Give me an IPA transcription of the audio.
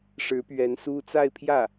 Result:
ʂ ɻ̩˧˥ p ɥ ɛ˧˥ n s u˥ t͡s a˥˧ ɪ̯ pʰ j ä˥˩

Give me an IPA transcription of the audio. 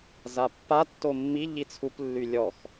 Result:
z a pː a tː o mː i ʎ i t͡sʰ u p lː y lʲ ɔ x

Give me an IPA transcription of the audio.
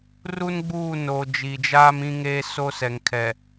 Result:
r u˦ n ɡ͡b uː˦˨ n oː˨ d͡ʒ i˨ d͡ʒ aː˦ m ĩ˦ ŋ eː˦ s o˦ s ɛ˨ ŋ kʰ ɛ˨

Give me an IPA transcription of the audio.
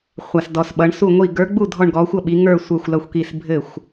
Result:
χʷ a˧˩ s d ɔ˧˩ s ɓ ʌ˨˦ ɳ s u˧˩ ŋʷ i˧˩ ɡ ə˞˨˦ ɡ͡b u˥˩ dʱ ɔ˧˩ ɳ ɡ ɔ˨˦ xʷ ʌ˥˩ ɓ i˨˦ ŋ ə˞˧˩ sʷ ə˞˧˩ xʷ l ʌ˧˩ xʷ k i˧˩ s bʱ ɘ˥˩ xʷ

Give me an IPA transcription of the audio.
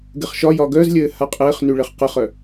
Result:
ɡ ɘ χ ʃ ɒ j ɒ ɡ œ z lʲ ɘː h a qʼ ɘː χ n y ɭ ɘ χ q ə χ œ

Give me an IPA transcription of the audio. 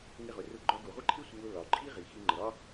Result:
ŋ ɪ˧ ʁ ʊ˩ r ʊ˧ ɡ͡ǃ ɒ˧ ɡ u˩ ʁʷ ɪ˥ ǃʰ ɪ˥ sʷ ə˧ w ʊ˧ l ɒ˩ ǃʼ i˥ ʁ i˩ x i˧ ŋ͡ǃ ə˩ ɾ ɒ˥

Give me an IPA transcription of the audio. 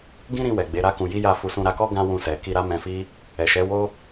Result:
ɡ ĩ˦ ɾ ĩ˧ w ɛ˨ ɡ͡b e˨˦ ɾ a˦ k ũ˧ j i˦ j a˦˨ f u˧ s ũ˧ ɾ a˧ k ɔ˦ ɡ ã˦ w ũ˧ s ɛ˨ k i˧ ɾ a˦ m ɛ̃˧ f i˦ | ɛ˨ ʃ ɛ˨˦ w o˦

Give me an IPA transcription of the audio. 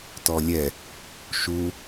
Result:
t ɔ lʲ ɛ | ʃ u

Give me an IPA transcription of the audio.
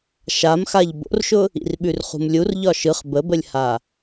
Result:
ʃ a m x a ʎ b o̰ r ʃ ʊ | ḭ r ɓ ʉ r χ ṳ m lʲ u r ʎ ɒ ʃ ɯ χ b ə b ə lʲ h a

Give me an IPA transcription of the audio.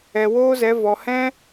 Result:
ɛ˨ w oː˦ z ɛ˨˦ v ɔ˨ h ɛ̃˦

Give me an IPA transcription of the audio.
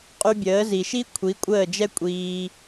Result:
qʼ y˧ bʲ əː˨˦ z i˨ ʃ i˦ kʷʰ i˨˦ kʷʼ əː˦˨ d͡ʒ ɛ˦ kʷʼ iː˧

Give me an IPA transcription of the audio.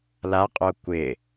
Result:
l a qʼ o kʷ ɪ

